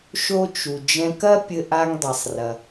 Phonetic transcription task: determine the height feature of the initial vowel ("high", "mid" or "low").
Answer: mid